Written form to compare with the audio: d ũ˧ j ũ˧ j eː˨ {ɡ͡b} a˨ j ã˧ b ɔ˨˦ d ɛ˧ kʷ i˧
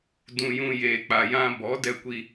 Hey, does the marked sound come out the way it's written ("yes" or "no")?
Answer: no